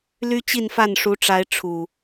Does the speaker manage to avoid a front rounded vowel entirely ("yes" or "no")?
no